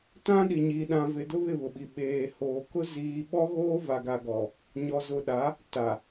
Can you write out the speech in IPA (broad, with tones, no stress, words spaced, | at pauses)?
tã˦ɗi˨ɲi˨ ɗã˨vɪ˨ dʊ˦βɪ˦˨ βʊ˨ɓi˨ ɓeː˨hoː˨kʊ˦ ziː˨ɓɔ˦ ɣoː˦va˨ɡa˨ɡɔ˨ | ɲɔ˨zʊ˨ɗa˨˦ | ta˨